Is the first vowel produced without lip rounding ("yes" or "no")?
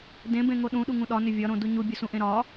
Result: yes